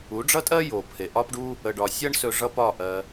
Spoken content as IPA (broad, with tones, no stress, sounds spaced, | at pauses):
u˨˦ ɖ͡ʐ ʌ˦ tʼ ɜ˦ j o˨ pʰ e˨ ʔ ɒ˦ p ɖ u˦ | ə˧ ɖ ɒ˧ sʲ ʌ˦ ɳ s ɵ˧ ʐ ʌ˦ p ɒ˦˨ ʔ ɜ˧